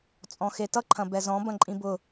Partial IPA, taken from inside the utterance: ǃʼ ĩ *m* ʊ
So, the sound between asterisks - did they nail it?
no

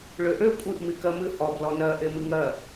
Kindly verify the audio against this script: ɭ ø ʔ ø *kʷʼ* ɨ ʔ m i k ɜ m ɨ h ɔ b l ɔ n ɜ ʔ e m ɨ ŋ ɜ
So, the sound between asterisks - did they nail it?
yes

